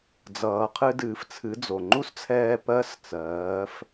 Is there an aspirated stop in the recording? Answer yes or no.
yes